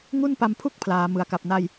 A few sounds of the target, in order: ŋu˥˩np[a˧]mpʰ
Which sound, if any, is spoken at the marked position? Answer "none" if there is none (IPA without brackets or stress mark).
a˧